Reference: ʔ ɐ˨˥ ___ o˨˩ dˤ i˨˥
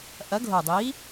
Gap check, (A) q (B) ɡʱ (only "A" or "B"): B